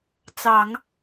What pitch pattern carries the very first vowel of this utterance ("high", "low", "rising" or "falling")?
low